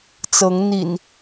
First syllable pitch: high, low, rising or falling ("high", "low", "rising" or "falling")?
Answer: rising